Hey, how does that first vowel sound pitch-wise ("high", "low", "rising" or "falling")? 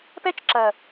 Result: high